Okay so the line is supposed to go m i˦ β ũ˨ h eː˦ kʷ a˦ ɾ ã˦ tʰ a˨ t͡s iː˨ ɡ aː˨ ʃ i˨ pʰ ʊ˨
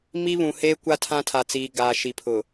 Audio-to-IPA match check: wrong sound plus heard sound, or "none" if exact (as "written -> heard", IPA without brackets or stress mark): ɾ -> tʰ